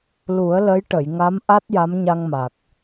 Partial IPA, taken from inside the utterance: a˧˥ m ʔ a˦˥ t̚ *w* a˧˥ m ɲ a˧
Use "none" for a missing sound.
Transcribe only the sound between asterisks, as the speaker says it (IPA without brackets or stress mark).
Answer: j